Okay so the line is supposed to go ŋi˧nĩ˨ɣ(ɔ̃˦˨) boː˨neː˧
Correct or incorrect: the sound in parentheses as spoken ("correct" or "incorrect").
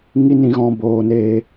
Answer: incorrect